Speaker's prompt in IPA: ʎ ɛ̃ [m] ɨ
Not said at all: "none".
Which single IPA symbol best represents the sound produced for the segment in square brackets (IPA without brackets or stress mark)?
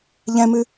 m